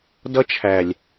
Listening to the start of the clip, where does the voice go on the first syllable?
high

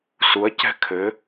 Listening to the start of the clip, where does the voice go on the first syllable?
rising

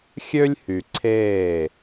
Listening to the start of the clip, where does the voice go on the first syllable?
high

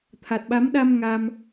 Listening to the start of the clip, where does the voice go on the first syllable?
low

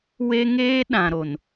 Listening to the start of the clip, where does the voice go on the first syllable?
high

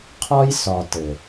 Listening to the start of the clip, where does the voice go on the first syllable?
high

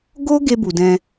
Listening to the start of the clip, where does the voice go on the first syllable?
high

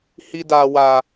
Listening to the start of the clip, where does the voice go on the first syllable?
high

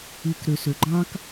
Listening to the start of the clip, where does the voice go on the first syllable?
low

